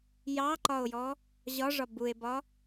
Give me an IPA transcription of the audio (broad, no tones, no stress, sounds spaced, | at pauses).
j ɑ ǃ ɒ o̯ j ɔ | ʑ ɒ ʐ ɒ b u e̯ b ɒ